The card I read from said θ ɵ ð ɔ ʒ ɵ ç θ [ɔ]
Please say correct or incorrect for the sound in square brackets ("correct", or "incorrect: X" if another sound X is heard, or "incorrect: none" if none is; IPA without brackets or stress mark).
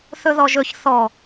correct